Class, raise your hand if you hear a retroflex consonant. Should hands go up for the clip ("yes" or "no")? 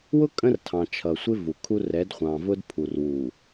no